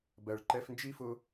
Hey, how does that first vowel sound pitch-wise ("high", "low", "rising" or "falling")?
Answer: low